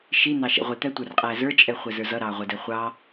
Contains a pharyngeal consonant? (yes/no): no